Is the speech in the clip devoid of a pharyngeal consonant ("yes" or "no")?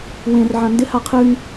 no